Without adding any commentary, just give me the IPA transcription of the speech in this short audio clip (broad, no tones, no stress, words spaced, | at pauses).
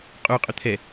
qʼuqʼʏ t̪ʰɛ